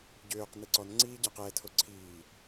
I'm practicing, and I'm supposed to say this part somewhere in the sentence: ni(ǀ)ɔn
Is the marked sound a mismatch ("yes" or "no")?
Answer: no